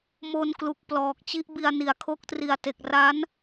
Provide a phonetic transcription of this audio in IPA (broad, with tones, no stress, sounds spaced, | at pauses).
m o˧ n k l u˨˩ k̚ p l ɔː˨˩ k̚ t͡ɕ i˦˥ ʔ b i˧ a̯ n i˨˩ a̯ kʰ o˦˥ k̚ t r i˨˩ a̯ t e˨˩ k̚ r a˦˥ n